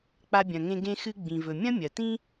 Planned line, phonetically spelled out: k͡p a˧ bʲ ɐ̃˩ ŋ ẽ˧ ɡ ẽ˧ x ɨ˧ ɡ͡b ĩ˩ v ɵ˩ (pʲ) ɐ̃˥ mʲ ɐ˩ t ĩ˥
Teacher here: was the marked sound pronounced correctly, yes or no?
no